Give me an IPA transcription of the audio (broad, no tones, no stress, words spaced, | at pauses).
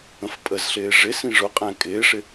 ə̃fpʼəzɬɪː ʐɪsĩ ʐʊqʼæ̃ kʼɪːʂɪ